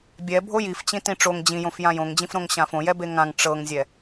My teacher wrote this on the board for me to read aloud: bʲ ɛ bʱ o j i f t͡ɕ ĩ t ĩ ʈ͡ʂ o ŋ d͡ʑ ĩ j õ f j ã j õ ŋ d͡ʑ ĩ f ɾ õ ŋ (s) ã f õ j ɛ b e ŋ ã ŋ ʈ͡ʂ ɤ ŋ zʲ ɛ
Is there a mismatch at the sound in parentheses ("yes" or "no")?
yes